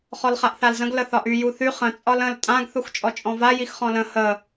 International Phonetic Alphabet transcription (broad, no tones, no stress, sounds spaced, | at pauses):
χ ɔ l χ a ʔ θ a l z ə̃ ɡ l ə θ ɒ ʔ y j u θ y χ ə̃ t͡sʼ ɒ l ə̃ l tʼ ã ɡ θ u x t͡ʃʼ ɔ t͡ʃʼ ɔ̃ v a j i x χ ɔ̃ l ə̃ h ə